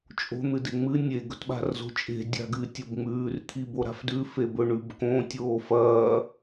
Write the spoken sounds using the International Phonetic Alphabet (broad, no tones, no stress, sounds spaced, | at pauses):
t͡ʃʼ o̤ n̪ ɨ d e ŋ͡m ɨ nʲ e ɡ ɵ t ɓ a̤ r z o̤ t͡ʃʼ e̤ dʲ a̤ ɡ ɨ tʲ o b ŋ͡m ʉː r t̪ʰ i b o ɾ a̤ f d ʉ f e b ɵ ɳ ʉ b k õ tʲ oː f ɐː